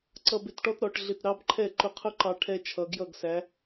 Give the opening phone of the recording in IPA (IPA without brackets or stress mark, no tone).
ǀ